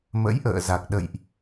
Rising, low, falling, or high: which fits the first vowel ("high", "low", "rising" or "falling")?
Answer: rising